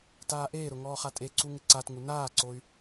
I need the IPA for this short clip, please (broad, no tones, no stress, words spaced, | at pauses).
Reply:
taːʔeːɾʊ ŋɔːχatʼeǀu ŋɪǀatŋu naːǀoy̯